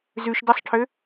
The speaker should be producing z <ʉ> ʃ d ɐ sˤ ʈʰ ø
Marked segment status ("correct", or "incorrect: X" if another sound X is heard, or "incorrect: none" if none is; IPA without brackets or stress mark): correct